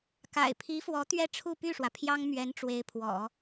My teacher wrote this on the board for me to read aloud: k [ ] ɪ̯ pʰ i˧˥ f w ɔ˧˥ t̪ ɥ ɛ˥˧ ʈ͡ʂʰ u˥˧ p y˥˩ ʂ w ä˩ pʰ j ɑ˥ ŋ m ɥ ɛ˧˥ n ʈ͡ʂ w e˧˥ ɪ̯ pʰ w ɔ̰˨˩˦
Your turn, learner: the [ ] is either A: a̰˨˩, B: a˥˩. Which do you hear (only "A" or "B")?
A